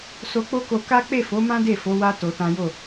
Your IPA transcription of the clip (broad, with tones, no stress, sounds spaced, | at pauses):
s o˧ k͡p o˦ k o˧ k a˦ k͡p e˦˨ f o˨˦ m ã˦ d e˦˨ f o˨˦ w a˦ t o˧ t ã˦ j o˦˨